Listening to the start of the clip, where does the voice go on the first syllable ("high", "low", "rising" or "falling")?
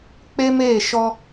high